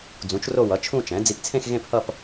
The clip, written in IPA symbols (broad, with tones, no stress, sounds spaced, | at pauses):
d͡z ũ˩˥ t͡ʃ r o˥˧ w ʌ˩˥ t͡ʃʰ ũ˥˧ t͡ʃ ɛ̃˩˥ d͡z i˧ p t͡sʰ ẽ˥˧ x ɣ ẽ˥˧ p h ʌ˥˧ p